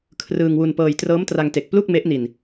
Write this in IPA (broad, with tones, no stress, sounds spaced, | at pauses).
kʰ r ɯː˧ ŋ w u˧ n p ɤː˧ j t r ɤː˦˥ m t r a˧ ŋ t e˨˩ k̚ p l u˥˩ k̚ m e˦˥ ʔ n i˧ n